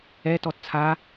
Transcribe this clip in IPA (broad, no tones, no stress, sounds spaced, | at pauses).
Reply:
ɛ t ɔ t t͡sʰ a